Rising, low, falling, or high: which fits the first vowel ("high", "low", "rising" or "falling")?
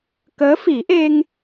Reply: rising